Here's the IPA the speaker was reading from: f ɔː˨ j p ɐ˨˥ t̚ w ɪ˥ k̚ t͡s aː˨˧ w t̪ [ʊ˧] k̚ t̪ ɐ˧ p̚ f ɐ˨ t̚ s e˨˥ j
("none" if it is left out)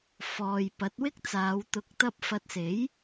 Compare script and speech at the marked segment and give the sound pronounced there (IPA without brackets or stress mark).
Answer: ʊ˨